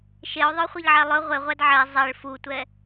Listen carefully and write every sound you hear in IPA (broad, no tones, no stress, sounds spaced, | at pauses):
ʃ e o̯ ðˤ œ χʷ e ʎ ʕ æ lˠ ɵ ʁʷ e ʁʷ æ d ʕ ɛ zˤ ɛ ɭ f u tʷ ɛ